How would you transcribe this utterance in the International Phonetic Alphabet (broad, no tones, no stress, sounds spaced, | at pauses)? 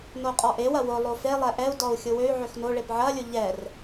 n o qʼ ɔ ʔ e w ɐ w ʊ lˠ o f e lˠ ɛ ʔ ɛ u̯ d ɔ u̯ xʲ ʊ w ø y̯ ʕ ø x n o ɭ e p ʕ ɐ lʲ ʊ ʎ ɛ r